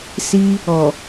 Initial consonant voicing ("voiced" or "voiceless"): voiceless